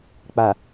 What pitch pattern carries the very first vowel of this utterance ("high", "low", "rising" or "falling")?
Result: low